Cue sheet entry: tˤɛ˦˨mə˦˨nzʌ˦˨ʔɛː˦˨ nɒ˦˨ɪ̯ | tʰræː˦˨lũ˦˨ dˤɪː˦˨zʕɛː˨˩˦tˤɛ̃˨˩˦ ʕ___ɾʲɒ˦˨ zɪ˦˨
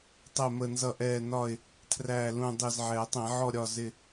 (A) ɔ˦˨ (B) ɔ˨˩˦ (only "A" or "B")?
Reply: A